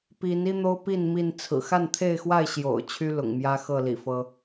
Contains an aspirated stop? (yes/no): yes